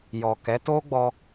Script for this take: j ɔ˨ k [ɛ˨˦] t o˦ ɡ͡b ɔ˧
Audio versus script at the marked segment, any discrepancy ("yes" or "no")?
no